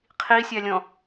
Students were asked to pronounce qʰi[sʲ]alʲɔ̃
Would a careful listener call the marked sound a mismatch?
no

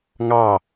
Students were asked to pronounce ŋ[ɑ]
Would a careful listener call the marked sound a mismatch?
no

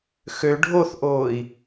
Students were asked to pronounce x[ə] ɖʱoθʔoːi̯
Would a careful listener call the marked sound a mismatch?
yes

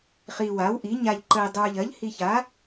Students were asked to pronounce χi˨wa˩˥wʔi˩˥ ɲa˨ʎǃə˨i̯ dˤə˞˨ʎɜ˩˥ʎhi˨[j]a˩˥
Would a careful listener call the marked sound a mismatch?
yes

